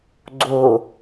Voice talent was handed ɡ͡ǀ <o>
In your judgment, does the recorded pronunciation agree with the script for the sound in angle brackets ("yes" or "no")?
yes